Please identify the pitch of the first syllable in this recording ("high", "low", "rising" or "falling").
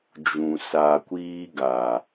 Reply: low